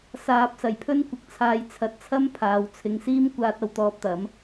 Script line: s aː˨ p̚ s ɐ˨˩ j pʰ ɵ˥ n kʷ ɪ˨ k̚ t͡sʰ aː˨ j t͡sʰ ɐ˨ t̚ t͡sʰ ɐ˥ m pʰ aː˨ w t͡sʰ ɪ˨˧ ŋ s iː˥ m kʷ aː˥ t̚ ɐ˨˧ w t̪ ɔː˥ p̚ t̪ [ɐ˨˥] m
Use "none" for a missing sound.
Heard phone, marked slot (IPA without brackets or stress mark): ɐ˨˥